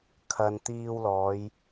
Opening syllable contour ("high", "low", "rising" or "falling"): low